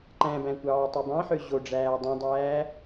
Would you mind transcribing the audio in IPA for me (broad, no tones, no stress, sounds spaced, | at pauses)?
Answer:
ǃ æ̃ b æ̃ kʷ ɑː tˤ e b ɑ̃ ħ ø ʑ o ɖ͡ʐ æː dˤ ũ dˤ æː